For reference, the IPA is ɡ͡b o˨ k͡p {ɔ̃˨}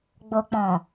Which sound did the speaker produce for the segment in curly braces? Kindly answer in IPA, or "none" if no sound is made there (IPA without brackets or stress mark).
ɔ̃˨